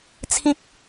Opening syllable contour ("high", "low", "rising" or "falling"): high